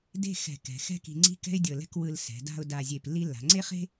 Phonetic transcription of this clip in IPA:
d e̤˥˧ x ɛ̤˧˩ k ɛ̤˩˧ x ɛ̤˥ k i̤˧ ŋ͡ǀ i̤˥˧ k ɛ̤˥ ɪ̯ dʲ ɤ˧˩ l ɛ̤˥ k w ɯ˧ l s ɛ̤˩˧ d a̤˥˧ ʊ̯ d a˧˩ zʲ e˧˩ p lː i˥˧ lː a̤˩˧ ŋ͡ǀ e˥ χ e̤˥

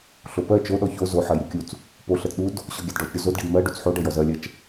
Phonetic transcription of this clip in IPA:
ɬ o p ɜ t͡ʃ o ɗ ɔ ç o z o ħ ɜ j ɾʲ u kʲ u t͡s | p o ɬ ɜ t͡s ɗ u d | ɕ ɔ ɡʲ a d ɖ ɔ t͡ʃ ɾʲ o z o d ɖ i d m ɜ ɖ u t͡s ħ o ɖ ɜ j ɔ z ɜ lʲ ɜ t͡ʃ

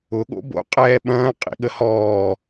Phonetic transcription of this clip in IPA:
ʊ ɠ o̰ b o̰ qʼ ɛː ɓ ɐ̃ː qʼ ḭ ɠ ə h ɔː

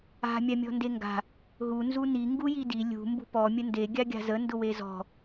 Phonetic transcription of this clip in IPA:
a̤ mʲ a mʲ ɔ̤ n d e ŋ ɡ a̤ | ɦ u n z u n i ŋ ɡ u j i d i lʲ ṳ m b ṳ p ɔ mʲ ə n d e ɡʲ a ɡʲ a̤ z ə n d ʊ w e z ɔ̤

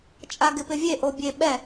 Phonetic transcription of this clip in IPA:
t͡ʃʼ a ɡ ɪ p ɪ vʲ e ʔ o bʲ e ɓ ɛ

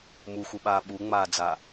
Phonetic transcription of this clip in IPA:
m u x u ɓ aː ɓ u ŋ͡m aː d͡z a

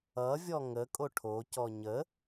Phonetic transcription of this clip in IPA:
ʌ vʲ ɔ ŋ ə kʼ o ʈʰ o c ɔ ɲ ə

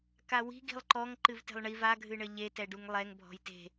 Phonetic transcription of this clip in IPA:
k a w i̤ ɡ i̤ lˠ ǃ ɔ ŋ ǃ ɨ v t e̤ lˠ ɳ i v a ɡʱ ɨ ɳ ɘ ʎ e t ɛ ɖ u ŋ lˠ ɛ ŋ bʱ ɔ̤ j t e̤

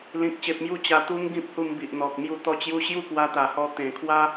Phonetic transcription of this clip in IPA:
l ĩ˦ k̚ ɕ e˦ p̚ m j u˥˧ t͡ɕ a˧ t̪ u˦ ŋ ɡ ĩ˦ p̚ h u˧ m b i˨ ʔ n̪ ɔ˨ k̚ m j u˧ t̪ ɔ˧ t͡ɕ j u˧ ɕ j u˥˧ k w a˧ t̪ a˨˩ h ɔ˧ t̪ ẽ˨˩ kʰ w a˦

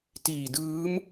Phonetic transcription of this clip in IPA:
t iː˨˩ d ɯː˦˥ m

